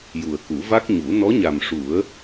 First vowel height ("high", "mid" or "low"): high